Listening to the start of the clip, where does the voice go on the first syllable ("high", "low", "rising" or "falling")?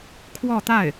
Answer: falling